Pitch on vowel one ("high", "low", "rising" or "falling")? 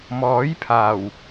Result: rising